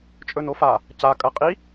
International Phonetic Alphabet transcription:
t͡ʃʼɵnofa | ca kʼɐ qʼi

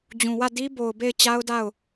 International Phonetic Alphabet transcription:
d͡ʑũ˨wä˦˨ di˦ bo˨ʊ̯be˦˨ɪ̯t͡ɕa˦ʊ̯da˦˨ʊ̯

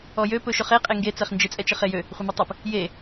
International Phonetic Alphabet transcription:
ɔjø pɵʃɵχe qʼeŋɡe t͡sɛχnd͡ʒɪ t͡sʼɛt͡ʃɪχejø | χʷɪmøtˤəp | je

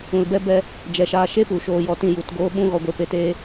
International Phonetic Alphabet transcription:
ũ˨lbɛ˦ bɛ˧ | d͡ʒɛ˨ʃaː˧ ʃe˦pu˨ ʃoː˧jɔ˧tĩ˧ ju˨t ɡoː˦ɓũ˦ɣɔ˧ ɡʷe˧ pe˨teː˧

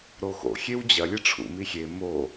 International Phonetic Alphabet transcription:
ɾoxo̰ xʲewd͡ʑɐ lʲɨʈ͡ʂʰṵ mixʲe mo

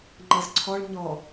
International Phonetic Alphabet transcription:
ŋ͡ǃʌzǀʰɔɭ ɲɔ

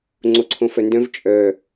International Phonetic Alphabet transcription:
ŋ͡ǀoǀʰõfœndœ̃v t͡ʃʼœ

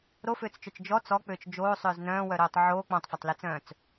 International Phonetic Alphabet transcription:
ɾofʏːt͡st͡ʃœt͡ʃ d͡ʒɔ t͡sɔk͡pʏːt͡ʃ d͡ʒoːsˤʏːz nœ̃ːwœɾoːtˤ ʕoː k͡pɔ̃tˤfɐtˤlit͡sœ̃ːt͡s

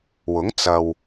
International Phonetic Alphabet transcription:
wʊ˨˥ŋt͡sɐ˨w

